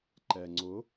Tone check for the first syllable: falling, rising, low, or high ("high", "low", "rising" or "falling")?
low